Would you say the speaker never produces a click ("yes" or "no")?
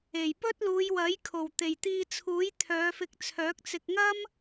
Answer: yes